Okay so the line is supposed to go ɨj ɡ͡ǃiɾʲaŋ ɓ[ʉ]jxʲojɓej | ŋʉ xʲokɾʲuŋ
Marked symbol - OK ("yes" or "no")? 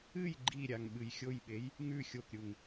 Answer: no